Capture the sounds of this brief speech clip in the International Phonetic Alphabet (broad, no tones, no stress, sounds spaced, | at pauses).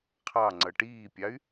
qʰ ɑ ŋ͡ǀ ʌ ʈ iː pʲ ɑ y̯